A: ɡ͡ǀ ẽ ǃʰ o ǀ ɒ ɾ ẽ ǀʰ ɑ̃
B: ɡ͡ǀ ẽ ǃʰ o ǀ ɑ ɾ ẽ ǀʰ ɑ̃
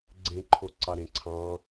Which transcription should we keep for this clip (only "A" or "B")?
B